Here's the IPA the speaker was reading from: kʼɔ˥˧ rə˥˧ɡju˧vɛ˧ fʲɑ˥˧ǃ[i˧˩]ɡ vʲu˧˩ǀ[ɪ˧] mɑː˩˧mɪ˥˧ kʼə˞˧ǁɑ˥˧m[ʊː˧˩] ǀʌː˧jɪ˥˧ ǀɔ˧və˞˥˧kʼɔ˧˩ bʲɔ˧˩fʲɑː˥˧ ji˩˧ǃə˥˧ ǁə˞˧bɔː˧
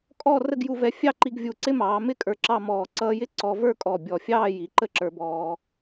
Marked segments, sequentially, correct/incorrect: incorrect, incorrect, incorrect

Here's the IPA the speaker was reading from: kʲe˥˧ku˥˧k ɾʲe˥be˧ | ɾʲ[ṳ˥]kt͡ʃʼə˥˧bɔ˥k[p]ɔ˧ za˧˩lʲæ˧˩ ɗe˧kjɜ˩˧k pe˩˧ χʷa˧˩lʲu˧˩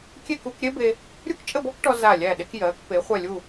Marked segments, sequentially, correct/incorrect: incorrect, incorrect

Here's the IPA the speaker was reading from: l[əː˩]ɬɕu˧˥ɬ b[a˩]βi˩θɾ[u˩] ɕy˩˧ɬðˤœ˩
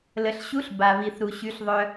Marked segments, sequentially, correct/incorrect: incorrect, correct, correct

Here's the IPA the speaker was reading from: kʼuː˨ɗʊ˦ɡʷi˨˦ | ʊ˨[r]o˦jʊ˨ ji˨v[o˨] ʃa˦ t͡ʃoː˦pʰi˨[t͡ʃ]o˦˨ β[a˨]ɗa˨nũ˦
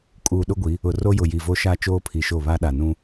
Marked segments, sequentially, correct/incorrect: correct, incorrect, incorrect, incorrect

